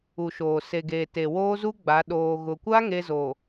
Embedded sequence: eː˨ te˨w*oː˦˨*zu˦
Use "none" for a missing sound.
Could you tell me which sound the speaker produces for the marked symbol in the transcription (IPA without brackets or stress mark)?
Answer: oː˦